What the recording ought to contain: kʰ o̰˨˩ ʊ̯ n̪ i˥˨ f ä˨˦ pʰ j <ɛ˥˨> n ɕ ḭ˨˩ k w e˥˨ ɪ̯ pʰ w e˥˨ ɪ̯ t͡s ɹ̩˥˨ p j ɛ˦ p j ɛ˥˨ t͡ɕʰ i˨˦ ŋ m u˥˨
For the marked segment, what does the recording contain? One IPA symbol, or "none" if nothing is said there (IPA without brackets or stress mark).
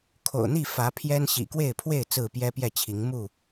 ɛ˦